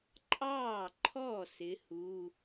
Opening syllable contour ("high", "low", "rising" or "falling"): falling